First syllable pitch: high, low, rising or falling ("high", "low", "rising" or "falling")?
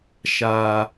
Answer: high